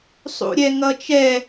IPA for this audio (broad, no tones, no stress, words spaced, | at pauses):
sˤṵɾʲɛ ŋʌt͡ʃɛ